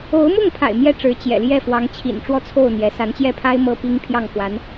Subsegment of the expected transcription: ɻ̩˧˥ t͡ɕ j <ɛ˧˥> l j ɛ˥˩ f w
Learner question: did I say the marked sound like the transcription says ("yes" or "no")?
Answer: no